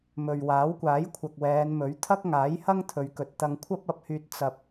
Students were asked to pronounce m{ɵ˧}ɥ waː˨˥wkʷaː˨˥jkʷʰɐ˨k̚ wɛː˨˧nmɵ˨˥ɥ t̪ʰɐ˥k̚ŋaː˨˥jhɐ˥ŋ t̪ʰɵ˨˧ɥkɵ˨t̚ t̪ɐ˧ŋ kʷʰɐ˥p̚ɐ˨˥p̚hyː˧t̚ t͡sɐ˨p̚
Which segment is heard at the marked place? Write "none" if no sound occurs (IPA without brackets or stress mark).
ɵ˨